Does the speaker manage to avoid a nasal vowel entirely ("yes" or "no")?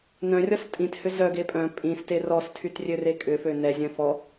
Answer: no